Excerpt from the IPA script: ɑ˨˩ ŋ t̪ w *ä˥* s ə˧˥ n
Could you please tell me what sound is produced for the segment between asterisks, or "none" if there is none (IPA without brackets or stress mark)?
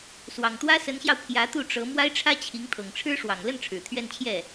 ä˥